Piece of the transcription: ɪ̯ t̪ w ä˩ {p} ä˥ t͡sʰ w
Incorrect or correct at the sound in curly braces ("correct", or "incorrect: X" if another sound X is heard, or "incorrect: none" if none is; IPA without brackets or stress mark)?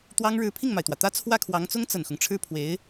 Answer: incorrect: t̪